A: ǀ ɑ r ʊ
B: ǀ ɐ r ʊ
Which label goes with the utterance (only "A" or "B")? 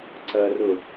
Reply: B